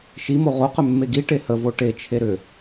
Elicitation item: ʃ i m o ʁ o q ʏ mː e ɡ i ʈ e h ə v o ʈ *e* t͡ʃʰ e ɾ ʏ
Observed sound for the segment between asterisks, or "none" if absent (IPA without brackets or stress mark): e